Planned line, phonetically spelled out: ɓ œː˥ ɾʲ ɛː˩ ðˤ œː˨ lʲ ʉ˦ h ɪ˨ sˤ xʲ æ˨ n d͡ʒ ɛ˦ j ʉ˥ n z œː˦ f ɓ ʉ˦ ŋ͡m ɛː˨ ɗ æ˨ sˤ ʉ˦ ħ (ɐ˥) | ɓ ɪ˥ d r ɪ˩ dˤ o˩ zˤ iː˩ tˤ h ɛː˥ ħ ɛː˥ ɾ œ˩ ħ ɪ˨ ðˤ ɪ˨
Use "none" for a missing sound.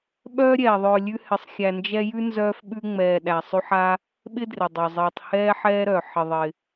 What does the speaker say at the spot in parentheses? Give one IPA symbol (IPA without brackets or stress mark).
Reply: a˥